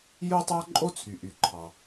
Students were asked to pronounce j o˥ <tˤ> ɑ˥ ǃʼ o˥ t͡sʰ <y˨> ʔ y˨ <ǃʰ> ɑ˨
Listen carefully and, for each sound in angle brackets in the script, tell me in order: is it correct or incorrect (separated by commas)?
correct, correct, correct